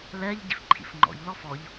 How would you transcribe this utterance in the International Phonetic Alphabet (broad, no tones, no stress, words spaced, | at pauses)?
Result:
lɛːʎɟḭf ǃʰḭfŋ͡ǃɔ̰ʎlɔf ɔʎ